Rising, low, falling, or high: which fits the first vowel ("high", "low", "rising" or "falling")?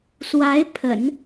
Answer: rising